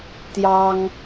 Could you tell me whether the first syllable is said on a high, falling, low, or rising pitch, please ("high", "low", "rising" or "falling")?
high